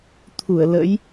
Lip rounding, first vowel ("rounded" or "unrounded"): rounded